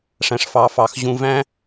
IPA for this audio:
ʂ æ̃˩ ʂ f ɑ˩ f ɑ˩ x ʑ ũ˨ v æ̃˦

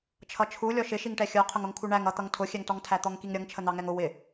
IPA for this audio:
t͡ʃʰ ʌ t͡ʃʰ u lʲ ɔ ʃ ɪ ʃ i ŋ ʈ ɛ xʲ ə˞ qʰ ʊ ŋ ʊ ŋ kʰ u ɳ æ ŋ ʌ t̪ ʌ ŋ tʰ ʊ xʲ ɛ ŋ t ɔ ŋ tʰ æ t̪ ɔ ŋ k i ŋ ɾʲ ʌ ŋ t͡ʃʰ ə n̪ ɑ ŋ ɛ ŋ ʊ w ɪ

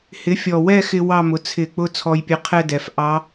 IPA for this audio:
h ɪ˩˥ fʲ ɔ˨˩ w ɛ˥˧ x ɪ˧ w ɑ˥˧ m ʊ˩˥ t͡sʰ ɪ˧˩˧ k͡p ʊ˥˧ t͡sʰ ɔ˧ j pʲ ɛ˧ qʰ ɛ˥˧ d ɛ˨˩ f ʔ ɑ˧˥

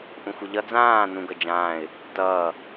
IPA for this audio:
ʔ ũ xʷ ʌ ʎ ʌ d͡z ãː n ũ ɡ ʌ d͡ʒ ãː ɪ̯ | t ʌː

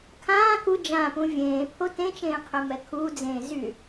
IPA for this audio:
kʰ ãː k u d͡ʒ ã p ũ vʲ ẽː pʰ o t ẽ t͡ʃ ẽː qʰ ɛ m ɛ kʰ uː d͡z ẽː z y

